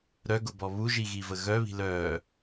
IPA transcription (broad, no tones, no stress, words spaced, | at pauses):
ɾœɡʊbɔ βuʒiɣivə ɣœβi̤ lœː